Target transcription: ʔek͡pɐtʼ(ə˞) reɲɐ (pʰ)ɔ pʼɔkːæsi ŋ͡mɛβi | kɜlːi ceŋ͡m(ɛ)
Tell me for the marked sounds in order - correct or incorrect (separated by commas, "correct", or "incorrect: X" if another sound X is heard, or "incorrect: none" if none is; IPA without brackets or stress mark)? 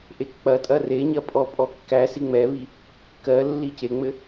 incorrect: ɐ, incorrect: pʼ, incorrect: ɘ